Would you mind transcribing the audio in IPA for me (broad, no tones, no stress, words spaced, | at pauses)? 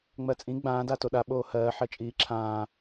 ŋ͡mɜt͡sʼĩ ɡ͡bãː datoɗa ɓoːhɜː ħɜt͡ʃʼiːǁʰãː